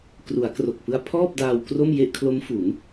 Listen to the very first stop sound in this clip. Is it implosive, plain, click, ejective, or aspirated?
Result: plain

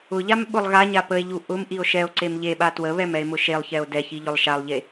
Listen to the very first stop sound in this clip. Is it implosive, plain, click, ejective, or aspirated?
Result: implosive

